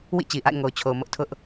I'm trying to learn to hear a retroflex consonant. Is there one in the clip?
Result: no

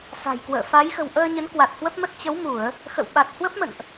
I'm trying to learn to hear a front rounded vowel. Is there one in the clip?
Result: no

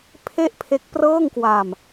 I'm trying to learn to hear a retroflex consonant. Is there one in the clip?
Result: no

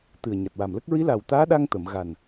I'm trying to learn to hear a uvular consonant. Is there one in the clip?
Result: no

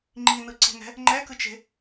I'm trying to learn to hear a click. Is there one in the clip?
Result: yes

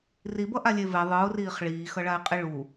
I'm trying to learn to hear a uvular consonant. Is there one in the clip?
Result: yes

